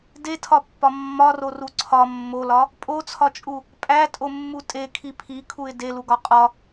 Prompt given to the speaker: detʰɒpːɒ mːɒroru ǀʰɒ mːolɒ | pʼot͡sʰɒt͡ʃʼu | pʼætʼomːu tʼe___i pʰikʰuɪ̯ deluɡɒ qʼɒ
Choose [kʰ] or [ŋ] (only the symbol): kʰ